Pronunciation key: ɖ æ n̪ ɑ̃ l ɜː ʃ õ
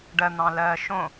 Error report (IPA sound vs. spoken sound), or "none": æ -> ɜ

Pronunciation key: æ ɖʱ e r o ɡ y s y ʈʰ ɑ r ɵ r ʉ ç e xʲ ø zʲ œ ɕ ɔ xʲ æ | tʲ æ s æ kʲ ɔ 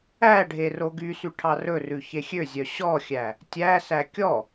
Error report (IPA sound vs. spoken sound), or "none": none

